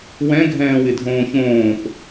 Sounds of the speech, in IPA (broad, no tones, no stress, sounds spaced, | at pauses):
w ɛ̃ ɡʱ ɛ̃ː w ɪ dʱ õː ç õː p